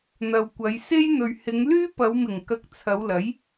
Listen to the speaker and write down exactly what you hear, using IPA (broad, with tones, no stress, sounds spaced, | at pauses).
n̪ ɐ˨ w kʷ ɐ˨˧ j s e˥ j n̪ ɵ˨ ɥ h ɪ˨˧ ŋ l yː˥ p ɐ˨˧ w m ɪ˨˩ ŋ k ɐ˨ k̚ t͡sʰ ɐ˨˧ w l ɐ˨˥ j